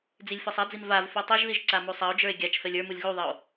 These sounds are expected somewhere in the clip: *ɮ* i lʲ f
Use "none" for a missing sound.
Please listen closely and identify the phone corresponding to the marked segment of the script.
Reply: d͡z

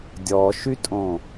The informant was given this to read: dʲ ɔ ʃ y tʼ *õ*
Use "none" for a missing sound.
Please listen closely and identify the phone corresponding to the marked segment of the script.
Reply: õ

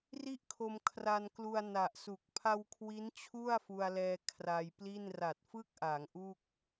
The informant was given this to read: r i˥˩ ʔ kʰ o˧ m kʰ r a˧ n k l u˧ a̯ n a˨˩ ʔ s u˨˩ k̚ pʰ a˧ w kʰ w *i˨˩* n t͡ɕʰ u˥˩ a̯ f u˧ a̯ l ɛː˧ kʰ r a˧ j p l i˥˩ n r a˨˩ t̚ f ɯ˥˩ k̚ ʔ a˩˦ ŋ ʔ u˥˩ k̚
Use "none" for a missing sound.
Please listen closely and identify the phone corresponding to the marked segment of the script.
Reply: i˦˥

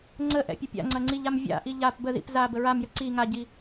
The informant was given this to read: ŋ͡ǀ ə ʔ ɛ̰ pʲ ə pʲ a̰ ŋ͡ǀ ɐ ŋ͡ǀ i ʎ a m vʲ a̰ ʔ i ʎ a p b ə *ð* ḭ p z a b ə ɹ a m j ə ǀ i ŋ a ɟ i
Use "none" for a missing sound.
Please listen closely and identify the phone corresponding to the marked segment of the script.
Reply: ð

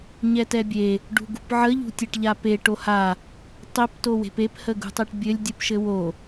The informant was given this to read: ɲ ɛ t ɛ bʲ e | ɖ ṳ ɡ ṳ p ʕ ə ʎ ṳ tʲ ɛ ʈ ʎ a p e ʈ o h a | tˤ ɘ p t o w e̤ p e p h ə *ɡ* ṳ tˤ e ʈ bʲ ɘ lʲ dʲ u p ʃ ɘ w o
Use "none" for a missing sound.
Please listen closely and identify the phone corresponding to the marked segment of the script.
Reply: ɡ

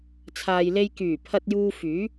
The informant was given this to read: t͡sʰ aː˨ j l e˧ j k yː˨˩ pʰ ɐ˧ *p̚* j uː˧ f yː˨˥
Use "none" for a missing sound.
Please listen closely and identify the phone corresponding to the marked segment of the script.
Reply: t̚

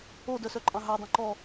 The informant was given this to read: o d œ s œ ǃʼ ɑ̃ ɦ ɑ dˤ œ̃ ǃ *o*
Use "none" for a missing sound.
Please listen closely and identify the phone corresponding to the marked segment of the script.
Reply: ɔ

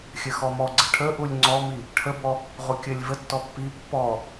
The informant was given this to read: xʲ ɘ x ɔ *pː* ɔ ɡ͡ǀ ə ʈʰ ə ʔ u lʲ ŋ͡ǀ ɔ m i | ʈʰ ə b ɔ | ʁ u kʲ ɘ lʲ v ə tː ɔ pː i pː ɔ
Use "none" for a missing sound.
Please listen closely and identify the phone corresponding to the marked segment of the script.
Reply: m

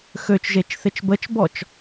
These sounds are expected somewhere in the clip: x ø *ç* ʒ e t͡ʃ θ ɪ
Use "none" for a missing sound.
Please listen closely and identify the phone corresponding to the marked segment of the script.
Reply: t͡ʃ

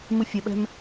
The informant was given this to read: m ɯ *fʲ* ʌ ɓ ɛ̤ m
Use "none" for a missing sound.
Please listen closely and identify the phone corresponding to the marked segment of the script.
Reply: fʲ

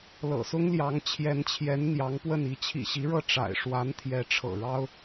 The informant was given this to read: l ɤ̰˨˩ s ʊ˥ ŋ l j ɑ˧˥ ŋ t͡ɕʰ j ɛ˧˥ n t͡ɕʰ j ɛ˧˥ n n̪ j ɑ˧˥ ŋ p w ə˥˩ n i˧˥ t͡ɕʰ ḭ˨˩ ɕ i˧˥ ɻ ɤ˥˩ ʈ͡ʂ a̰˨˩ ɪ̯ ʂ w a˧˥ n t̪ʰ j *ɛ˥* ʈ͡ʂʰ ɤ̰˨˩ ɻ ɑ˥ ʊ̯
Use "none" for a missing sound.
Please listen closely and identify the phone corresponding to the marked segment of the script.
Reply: ɛ˧˥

